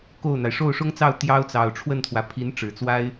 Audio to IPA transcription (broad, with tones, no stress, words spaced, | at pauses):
ko˥˩ʊ̯n̪a˩ɪ̯ ʂo˥˩ʊ̯ʂʊ˥ŋt͡sɑ˥˩ʊ̯ t̪jɑ˥ʊ̯t͡sɑ˨˩ʊ̯ ʈ͡ʂʰwə˥˩nt̪ʰwä˩ pʰi˧˥nʈ͡ʂɻ̩˨˩t͡swa˥ɪ̯